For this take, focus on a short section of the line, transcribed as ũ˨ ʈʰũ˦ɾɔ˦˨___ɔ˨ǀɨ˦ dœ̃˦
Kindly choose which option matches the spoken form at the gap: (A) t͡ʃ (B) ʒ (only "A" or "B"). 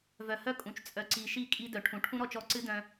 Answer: A